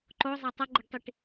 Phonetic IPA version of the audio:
ǃozˤæ tˤʌɡ͡ǃeɖtˤiʈ

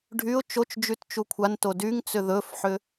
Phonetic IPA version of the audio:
ɖʱyʊ̯ t͡ʃot͡ʃd͡ʒyt t͡ʃukʷʰanto dyŋt͡sʏ ðɵfħʏ

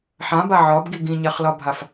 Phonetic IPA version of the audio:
ħãba ʕɒbɡi ɡĩɲaχlɒbʱaf

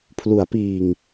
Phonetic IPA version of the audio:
pʰlu˩˦a̯piː˨˩ŋ

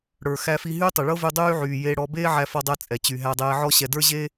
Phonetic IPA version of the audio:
ɽə˞˩ xæ˧fi˧ ɦyː˥tˤɛ˩ɭɤ˥ vy˧ dˤyː˥ʕyː˩jeː˧ ɽɔ˧beː˥ʕæ˧ fɔ˧dˤɛ˧ t͡sʼɛ˩t͡ɕy˩ ɦæ˧dˤeː˧ʕɔ˥ɕɛ˧ də˞˥ʑe˥

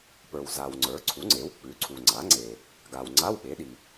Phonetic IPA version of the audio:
pə˞˨wza˨wŋ͡ǀə˞˩˥ ǀʰu˩˥ŋ͡ǀe˩˥w k͡pʉ˩˥ ǀʰu˨ŋ͡ǀa˩˥ŋ͡ǀe˨ | ɡa˨wŋ͡ǀa˧˥˧wɓe˩˥ɗi˨

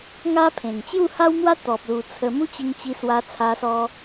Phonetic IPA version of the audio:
ŋa˦ pʰẽ˨˩ŋt͡ɕju˥˧ha˦w mwa˦t̪ɔ˨p̚lu˨˩ t͡sʰə˧ mu˦t͡ɕi˧ŋt͡ɕi˧ swa˧t͡sʰa˧sɔ˧

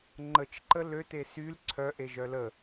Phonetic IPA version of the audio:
ŋ͡ǃət͡ʃ ǃəlø tesyl ǀʰœ ʔeʒœlə

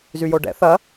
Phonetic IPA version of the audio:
zyjoɖɛ̰ θɐ

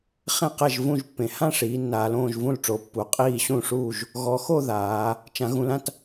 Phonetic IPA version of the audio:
χẽ˥˨qɛ˥˨ʒ vũ˥˨ʒpːẽ˩˧ hã˥˨ʂiː˩˧ nːaː˩˧l õː˥˨ʒvũ˥˨lʈ͡ʂo˩˧ pːu˩˧qʼiː˥˨ ɕũ˥˨ʂuː˥˨ʒ | ɣɔ˩˧xo˥˨ ðaː˩˧ | t͡ʃã˩˧ɣũ˩˧lã˥˨t

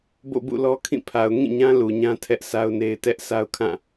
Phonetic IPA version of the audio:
bo̰˦˨bṵ˦˨lɔ˦kʰĩ˦˨ pʰa˨ʊ̯ŋĩ˦˨ɲã˦ lu˨ɲã˦ tʰɛ˦ʔsʰa˦ʊ̯ne˦ɪ̯ tɛ˦ʔ sʰa˦ʊ̯kʰã˦˨

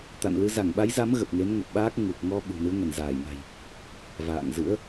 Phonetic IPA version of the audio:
t̪a̰˧˨nlɨ˨˦ za˧˩ŋɓa˨˦jza˨˦m ɣə˨˩p̚ŋe˨˦nŋə˨˩p̚ɓaː˦˥k̚ ŋu˨˩k̚ ŋɔ˧ ɓṳ˨˩nɨ˨˦ə̯ ŋə˧˩nzaː˧˩jna̤˨˩j | va̰ː˧˨ŋzɨ̰˧˥ə̯

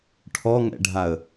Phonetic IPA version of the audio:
ʈʰɔŋɛ̰ɖʱaə̯

